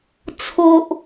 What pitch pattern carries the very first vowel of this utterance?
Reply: low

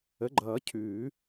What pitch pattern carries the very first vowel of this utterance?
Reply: rising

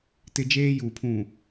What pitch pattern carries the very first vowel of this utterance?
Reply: high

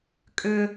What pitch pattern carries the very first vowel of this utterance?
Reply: high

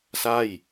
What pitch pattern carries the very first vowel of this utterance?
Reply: falling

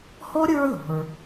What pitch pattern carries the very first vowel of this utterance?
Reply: high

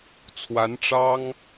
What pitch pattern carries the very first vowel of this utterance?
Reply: rising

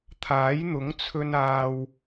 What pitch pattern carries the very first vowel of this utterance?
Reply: rising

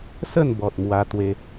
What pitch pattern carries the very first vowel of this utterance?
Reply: falling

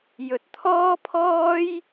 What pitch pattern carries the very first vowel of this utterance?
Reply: low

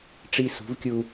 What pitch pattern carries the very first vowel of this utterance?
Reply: high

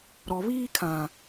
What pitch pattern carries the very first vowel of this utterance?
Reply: low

